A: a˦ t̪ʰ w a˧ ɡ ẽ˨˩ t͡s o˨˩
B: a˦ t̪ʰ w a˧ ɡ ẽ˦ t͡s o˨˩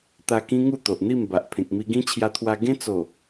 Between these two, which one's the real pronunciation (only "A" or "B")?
B